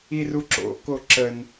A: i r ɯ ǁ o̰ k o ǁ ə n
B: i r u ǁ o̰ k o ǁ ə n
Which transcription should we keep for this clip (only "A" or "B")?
B